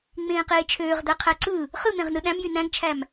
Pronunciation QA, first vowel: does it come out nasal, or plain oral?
nasal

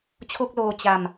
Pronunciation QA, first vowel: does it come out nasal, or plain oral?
oral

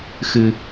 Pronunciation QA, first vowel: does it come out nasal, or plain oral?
oral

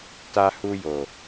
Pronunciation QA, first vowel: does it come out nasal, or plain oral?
oral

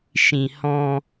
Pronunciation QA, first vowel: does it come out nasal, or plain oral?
nasal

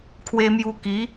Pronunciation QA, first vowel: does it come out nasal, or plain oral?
oral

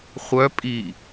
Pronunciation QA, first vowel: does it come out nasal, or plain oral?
oral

